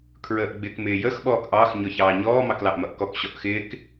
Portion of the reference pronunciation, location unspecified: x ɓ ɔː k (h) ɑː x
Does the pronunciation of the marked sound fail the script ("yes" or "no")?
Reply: yes